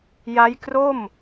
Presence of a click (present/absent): absent